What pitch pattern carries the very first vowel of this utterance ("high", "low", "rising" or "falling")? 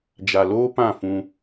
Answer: low